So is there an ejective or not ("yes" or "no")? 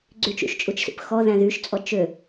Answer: yes